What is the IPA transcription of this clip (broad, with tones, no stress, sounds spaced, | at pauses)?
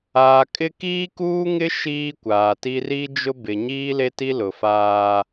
aː˨ kʼ ɪ˦ k iː˦ k uː˦ ŋ ɪ˦ ʃ iː˦ kʷ aː˨ t i˦ r i˦ d͡ʒ ʊ˦ b ɪ˨ ɲ iː˦ l e˦ t i˦ l ʊ˨ f aː˦